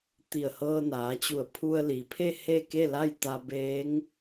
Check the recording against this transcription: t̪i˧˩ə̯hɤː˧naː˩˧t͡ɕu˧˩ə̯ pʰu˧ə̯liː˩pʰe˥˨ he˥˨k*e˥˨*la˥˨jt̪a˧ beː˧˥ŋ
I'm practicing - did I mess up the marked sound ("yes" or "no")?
no